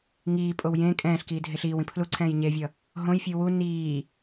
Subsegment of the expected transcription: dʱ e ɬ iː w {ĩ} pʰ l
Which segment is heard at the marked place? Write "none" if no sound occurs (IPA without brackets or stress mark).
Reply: ĩ